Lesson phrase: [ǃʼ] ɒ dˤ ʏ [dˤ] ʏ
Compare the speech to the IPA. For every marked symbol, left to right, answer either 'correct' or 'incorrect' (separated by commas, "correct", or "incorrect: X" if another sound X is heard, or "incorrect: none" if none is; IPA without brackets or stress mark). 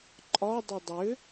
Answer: correct, correct